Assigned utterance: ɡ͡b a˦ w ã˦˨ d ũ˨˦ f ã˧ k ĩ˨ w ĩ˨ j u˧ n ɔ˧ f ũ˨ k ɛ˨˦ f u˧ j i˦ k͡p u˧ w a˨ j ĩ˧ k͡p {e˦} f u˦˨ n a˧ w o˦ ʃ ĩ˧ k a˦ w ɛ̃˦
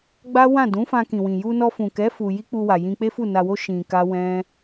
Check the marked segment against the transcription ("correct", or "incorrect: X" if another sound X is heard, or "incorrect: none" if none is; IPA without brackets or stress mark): correct